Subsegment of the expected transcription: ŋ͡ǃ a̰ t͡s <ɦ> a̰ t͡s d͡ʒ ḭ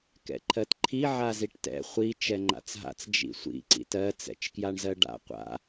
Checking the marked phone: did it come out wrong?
no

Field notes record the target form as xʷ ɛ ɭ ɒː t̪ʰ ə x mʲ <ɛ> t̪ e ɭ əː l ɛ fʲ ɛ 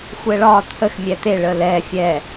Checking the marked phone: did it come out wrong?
no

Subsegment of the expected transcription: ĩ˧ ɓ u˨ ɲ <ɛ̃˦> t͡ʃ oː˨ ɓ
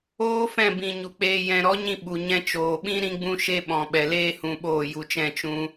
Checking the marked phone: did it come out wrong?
yes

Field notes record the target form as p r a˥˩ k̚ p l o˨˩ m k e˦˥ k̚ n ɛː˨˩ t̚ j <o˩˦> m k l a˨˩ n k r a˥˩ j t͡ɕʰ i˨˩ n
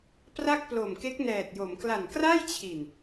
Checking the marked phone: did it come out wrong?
no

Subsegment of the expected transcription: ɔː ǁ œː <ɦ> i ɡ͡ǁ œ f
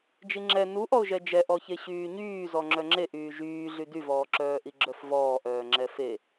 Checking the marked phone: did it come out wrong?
yes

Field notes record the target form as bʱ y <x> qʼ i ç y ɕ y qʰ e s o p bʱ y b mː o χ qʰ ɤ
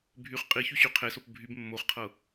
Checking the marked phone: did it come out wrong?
yes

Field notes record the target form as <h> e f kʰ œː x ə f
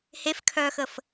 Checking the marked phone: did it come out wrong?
no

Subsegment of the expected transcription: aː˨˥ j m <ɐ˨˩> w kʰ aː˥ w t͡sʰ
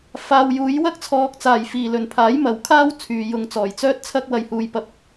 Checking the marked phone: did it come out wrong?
no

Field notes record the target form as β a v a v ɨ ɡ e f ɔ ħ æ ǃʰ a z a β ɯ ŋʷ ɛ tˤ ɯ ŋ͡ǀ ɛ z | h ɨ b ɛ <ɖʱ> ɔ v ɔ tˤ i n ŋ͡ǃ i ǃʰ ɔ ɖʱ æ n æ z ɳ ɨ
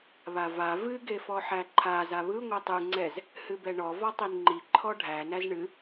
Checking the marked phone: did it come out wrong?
yes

